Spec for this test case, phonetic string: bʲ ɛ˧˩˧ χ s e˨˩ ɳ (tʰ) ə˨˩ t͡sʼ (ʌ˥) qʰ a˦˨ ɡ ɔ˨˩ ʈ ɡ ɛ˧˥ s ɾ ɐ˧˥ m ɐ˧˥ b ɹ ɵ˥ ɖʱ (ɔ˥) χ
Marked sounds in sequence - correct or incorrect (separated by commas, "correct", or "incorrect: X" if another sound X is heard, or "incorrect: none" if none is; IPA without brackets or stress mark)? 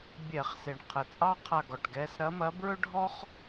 incorrect: qʰ, incorrect: ɑ˥, correct